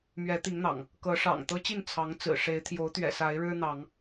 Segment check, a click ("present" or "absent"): absent